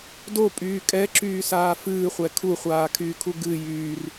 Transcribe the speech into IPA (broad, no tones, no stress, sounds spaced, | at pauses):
d o pʼ yː kʼ ɛ ǁ yː s aː f ɨː χʷ ɛ kʰ u χʷ aː kʰ yː kʰ u ɡ ɨ j yː r